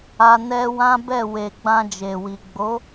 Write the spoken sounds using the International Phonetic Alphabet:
a˧ n ɛ˦ w ã˦ b ɛ˦˨ w e˨ ɡ͡b ã˧ d͡ʒ e˨ w i˨ ɡ͡b o˨˦

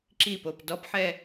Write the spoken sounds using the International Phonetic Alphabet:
ǁ i p o p d ɔ p ħ ɛ

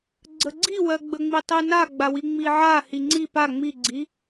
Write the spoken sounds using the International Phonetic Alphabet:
ɡ͡ǀ ə ɡ͡ǀ i w ɜ ɡ͡b ə ŋ͡m i tˤ i n a ɡ͡b a w i ŋ͡m i ʕ a h i ŋ͡ǀ i p a ŋ͡m i ɡ͡ǀ i

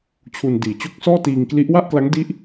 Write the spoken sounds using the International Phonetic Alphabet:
t͡ɕʰ u˧ n d iː˨˩ t͡ɕ o˥˩ k̚ s ɔː˥˩ t iː˧ ŋ k l i˦˥ ʔ w a˥˩ ʔ k l a˦˥ ŋ d i˦˥ ʔ

